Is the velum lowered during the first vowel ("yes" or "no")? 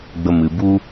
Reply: no